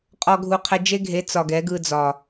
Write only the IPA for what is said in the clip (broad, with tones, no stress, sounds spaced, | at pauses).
qʼ ɔ˧ ɡʱ u˧ qʰ ɛ˧ d͡ʒ e˦ ɡʱ e˨˦ t͡s ɒ˨ ɡ ɛ˨˦ ɡ ɯ˧ d͡z ɒ˨